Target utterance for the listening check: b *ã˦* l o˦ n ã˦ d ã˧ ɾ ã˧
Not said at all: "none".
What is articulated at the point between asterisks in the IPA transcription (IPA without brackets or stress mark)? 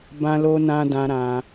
ã˦